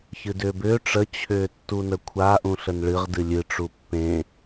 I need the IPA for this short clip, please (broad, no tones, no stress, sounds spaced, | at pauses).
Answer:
ç ɨ d ʏː b ʏː ʈ͡ʂ ə t͡ɕʰ ʏː tː u n ə kʷʰ a ʔ ũ ɬ ə n ɭ ɨ ʁ d ɨ lʲ ɨ ʈ͡ʂ u pː ẽ